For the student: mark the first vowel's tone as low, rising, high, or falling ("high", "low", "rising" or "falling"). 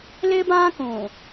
high